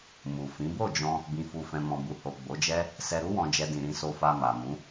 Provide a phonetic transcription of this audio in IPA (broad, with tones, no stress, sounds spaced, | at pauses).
m u˨ f ĩ˨˦ b o˦˨ d͡ʒ ɔ̃˧ | b ĩ˧ f u˧ f ɛ̃˧ m ɔ̃˨ b u˨ h o˨ ɡ͡b o˨˦ d͡ʒ ɛ˦ | s ɛ˧ ɾ u˦ w ɔ̃˧ d͡ʒ ɛ˧ d ĩ˨ ɾ ĩ˧ s o˧ f a˧ m a˨ m ũ˨˦